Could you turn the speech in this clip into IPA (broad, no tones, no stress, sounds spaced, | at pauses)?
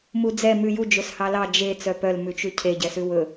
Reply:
m u d͡z ɛ m ʉ j u d͡ʒ ɵ s h ɑ l ɑ d͡ʒ e t͡s œ p œ l m ʉ t͡ʃ ʉ cʰ e ɟ ɛ s ʉ w ɵ